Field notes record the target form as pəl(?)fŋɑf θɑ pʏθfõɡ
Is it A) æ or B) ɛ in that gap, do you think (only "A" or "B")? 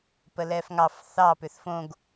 B